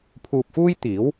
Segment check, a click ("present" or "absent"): absent